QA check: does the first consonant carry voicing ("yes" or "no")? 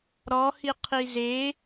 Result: yes